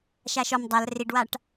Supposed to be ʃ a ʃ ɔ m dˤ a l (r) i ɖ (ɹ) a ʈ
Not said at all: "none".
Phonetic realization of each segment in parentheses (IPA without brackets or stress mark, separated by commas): r, w